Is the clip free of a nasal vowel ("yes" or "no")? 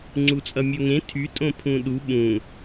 no